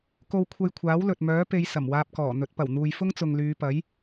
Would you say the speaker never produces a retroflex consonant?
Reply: yes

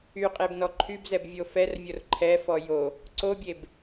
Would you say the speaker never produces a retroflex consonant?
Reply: yes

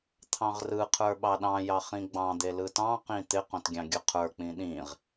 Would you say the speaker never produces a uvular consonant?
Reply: no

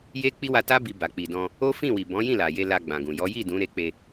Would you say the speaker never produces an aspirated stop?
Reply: yes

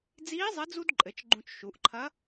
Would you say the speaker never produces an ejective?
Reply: no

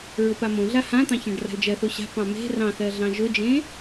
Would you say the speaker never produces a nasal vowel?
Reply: no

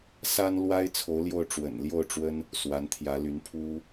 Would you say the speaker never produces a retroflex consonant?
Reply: no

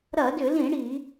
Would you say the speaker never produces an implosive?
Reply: yes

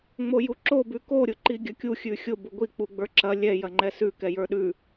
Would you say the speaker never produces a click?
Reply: no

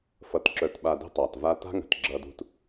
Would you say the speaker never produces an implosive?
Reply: no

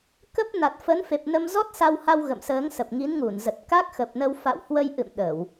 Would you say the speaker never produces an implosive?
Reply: no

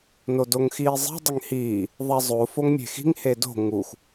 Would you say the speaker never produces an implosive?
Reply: yes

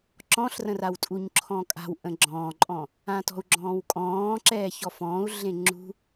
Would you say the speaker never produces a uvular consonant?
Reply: yes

